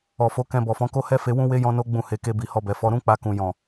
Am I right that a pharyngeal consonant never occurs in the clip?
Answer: yes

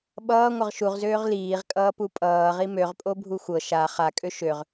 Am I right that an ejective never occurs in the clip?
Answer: no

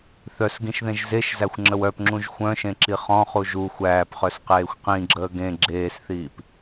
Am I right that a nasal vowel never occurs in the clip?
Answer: no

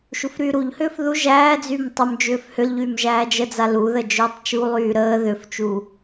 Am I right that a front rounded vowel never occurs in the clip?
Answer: no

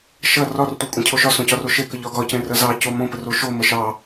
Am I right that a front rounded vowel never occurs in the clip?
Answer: yes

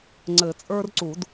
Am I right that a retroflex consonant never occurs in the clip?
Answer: yes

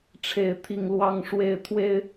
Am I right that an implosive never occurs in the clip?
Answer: yes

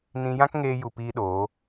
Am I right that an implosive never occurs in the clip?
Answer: no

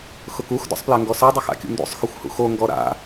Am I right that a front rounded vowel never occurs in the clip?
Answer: yes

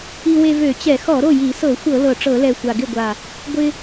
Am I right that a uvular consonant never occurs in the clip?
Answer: yes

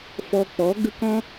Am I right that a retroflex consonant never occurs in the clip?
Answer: yes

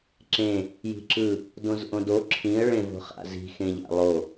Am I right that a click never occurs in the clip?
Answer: no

